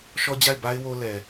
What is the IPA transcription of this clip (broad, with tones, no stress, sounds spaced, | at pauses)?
ʃ ɔ˦ d͡ʑ a˦˨ ɪ̯ b a˦ ɪ̯ w o˦ l ɛ˨